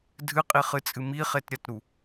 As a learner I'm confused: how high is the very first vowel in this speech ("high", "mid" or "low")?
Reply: high